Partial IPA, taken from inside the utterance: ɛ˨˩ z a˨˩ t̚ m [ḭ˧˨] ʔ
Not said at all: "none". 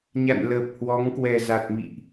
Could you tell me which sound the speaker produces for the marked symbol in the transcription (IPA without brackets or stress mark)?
ḭ˧˨